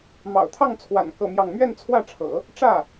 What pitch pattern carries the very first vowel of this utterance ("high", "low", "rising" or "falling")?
low